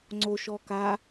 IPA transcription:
ŋ͡ǀ o ʃ ɔ k a

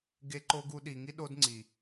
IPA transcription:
ɡ e˧˥ ǃ o˧˥ ɡ u˧ ɗ i˩˧ ŋ i˥ ɗ o˧˥ d ŋ͡ǀ i˩

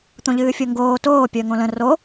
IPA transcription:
t̪ õ ʎ ɨː fʲ o ŋ ɡ oː t oː pʲ əː ŋ õ l ə̃ r o

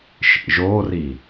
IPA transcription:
ʃ ḭ ʒ o r i

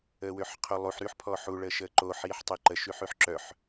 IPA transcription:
əː w ø ħ qʰ o lˠ u ħ ɾ y ħ pʰ ɔ ħ u ɭ əː ʃ əː ǃ o ħ iː ħ tˤ ɛ ǃ ə ʃ y ħ y ħ ǁ œ ħ

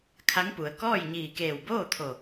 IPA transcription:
kʰ a˧˥ ŋ p u˩ ə̯ k ɔː˥˨ j ɲ iː˧˩ k eː˧˩ w b oː˥˨ t̪ʰ o˧˩

